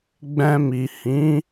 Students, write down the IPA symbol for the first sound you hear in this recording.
ɡ͡b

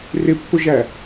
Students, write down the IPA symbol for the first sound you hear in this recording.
r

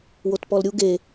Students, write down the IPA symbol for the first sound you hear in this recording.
w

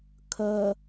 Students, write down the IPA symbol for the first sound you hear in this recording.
kʰ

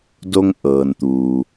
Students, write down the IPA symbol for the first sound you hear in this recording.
d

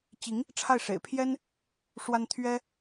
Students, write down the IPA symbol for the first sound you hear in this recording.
t͡ɕ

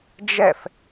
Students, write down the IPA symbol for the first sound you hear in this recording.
d͡ʒ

